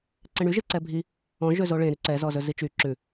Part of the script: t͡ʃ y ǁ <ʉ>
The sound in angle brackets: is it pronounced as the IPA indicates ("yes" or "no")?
yes